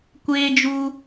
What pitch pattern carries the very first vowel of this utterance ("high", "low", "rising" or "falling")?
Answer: high